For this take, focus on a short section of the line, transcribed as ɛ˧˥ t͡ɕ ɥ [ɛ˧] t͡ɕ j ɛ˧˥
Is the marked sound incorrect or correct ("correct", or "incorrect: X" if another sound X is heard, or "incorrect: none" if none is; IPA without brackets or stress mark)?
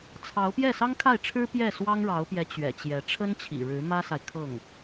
incorrect: ɛ̰˨˩